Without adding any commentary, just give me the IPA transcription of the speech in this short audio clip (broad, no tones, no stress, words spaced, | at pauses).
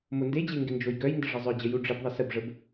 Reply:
monded͡ʑe ŋɡɪnd͡ʒojɡœjndə ʐəzˤœd͡ʑə juɖ͡ʐɪbðˤɪ səbʐəb